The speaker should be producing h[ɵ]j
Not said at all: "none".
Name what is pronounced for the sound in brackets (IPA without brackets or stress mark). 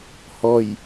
ɔ